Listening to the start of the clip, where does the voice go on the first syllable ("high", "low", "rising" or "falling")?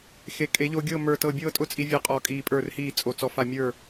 rising